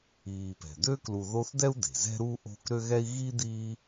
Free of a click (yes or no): yes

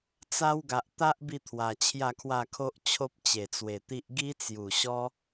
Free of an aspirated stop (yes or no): no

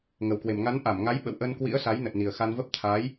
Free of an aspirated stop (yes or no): no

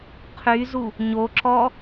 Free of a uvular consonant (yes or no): no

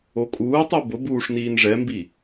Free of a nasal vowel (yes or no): yes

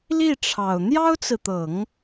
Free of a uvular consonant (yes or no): yes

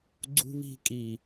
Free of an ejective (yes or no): no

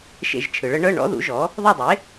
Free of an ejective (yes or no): yes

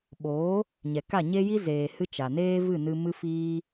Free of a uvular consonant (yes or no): yes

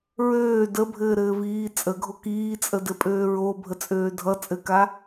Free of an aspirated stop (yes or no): yes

